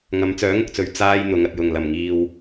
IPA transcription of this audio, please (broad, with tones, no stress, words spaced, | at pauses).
ŋɐ˨˧mt͡sœː˨˥ŋʊ˨k̚t͡sɵ˨ɥ t͡saː˧j n̪ʊ˨˥ŋ ɐ˨t̚jʊ˨˩ŋ lɐ˨˩mŋiː˨w